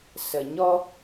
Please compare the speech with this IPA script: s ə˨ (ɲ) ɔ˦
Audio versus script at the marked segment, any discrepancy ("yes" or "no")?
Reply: no